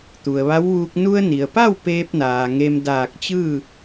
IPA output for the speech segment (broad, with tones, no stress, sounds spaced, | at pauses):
t̪ u˩ ə̯ ʋ a˧˥ w ʋ uː˧ k̚ n u˧ ə̯ n i˩ ə̯ p a˥˨ w p eː˧ p̚ n aː˩ ŋ e˧ m d aː˧˩ k̚ t͡ɕ ɯː˥˨